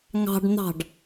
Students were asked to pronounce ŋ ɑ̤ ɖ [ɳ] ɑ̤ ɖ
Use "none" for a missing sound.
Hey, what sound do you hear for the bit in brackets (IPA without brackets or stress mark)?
n̪